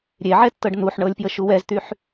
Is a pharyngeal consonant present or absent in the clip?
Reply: present